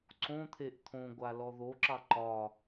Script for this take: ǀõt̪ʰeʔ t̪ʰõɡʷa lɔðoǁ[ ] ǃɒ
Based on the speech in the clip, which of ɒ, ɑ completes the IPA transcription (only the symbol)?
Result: ɑ